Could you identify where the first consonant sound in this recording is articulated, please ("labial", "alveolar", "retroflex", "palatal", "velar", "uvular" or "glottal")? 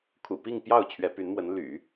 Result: velar